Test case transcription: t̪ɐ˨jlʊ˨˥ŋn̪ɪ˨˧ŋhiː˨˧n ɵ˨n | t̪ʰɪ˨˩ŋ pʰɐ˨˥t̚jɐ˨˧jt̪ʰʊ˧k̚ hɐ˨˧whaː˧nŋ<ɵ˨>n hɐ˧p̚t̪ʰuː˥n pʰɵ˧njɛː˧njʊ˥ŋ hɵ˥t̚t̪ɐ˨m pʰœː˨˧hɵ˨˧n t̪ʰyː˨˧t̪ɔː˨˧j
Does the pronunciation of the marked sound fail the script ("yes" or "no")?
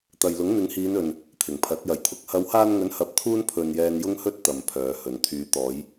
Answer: yes